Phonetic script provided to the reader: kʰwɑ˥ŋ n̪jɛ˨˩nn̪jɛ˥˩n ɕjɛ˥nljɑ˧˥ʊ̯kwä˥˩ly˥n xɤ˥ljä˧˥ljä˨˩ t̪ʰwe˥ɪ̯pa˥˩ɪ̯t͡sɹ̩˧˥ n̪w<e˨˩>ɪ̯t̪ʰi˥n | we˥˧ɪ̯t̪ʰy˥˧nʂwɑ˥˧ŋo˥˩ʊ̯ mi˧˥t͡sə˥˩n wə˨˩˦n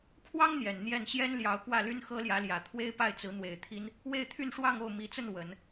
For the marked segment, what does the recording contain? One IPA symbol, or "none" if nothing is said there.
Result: e˨˩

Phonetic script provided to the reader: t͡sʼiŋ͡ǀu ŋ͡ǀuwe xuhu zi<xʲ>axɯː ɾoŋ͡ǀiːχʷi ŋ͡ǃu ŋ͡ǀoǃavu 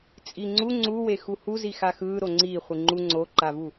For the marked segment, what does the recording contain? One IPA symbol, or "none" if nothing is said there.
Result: x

